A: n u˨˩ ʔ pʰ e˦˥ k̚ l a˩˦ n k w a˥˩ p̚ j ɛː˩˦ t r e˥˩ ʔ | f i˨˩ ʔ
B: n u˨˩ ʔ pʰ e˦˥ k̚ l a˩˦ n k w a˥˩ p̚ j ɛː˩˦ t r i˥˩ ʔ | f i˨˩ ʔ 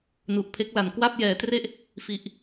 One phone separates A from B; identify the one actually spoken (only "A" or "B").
A